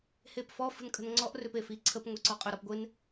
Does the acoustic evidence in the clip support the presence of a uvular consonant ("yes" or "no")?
yes